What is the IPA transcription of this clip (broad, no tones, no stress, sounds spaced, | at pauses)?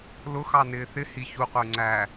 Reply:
l ʊ x ɑ n ɪː θ ɪ h i ç u qʷ ʌ y̯ ŋ͡ǀ æ